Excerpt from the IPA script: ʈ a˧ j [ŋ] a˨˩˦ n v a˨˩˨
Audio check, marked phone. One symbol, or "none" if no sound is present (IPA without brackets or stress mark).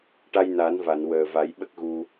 n